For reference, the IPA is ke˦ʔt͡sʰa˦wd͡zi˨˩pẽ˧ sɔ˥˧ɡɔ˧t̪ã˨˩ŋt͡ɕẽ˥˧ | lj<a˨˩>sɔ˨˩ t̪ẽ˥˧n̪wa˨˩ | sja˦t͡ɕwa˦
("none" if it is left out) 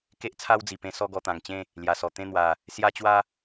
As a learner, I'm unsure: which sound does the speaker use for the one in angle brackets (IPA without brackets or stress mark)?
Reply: a˨˩